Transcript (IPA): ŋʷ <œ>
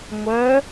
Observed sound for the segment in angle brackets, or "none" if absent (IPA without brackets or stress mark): œ